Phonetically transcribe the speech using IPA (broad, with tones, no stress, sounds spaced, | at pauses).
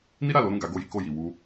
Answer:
n i˦ ɾ a˦˨ l o˨˦ ɾ ũ˦˨ ɡ a˨˦ ɡ o˦˨ j i˨˦ k o˦˨ j i˨ w u˧